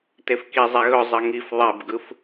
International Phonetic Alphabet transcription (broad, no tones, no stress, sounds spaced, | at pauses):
t e f k i zˤ e ɣ ɵ zˤ ɘ ŋ i f ðˤ e b ɡ ɯ f